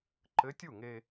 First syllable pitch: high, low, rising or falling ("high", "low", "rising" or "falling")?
rising